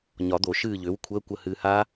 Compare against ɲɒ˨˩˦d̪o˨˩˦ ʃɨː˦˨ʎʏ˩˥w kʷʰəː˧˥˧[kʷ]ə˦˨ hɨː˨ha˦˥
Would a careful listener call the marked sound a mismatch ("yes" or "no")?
no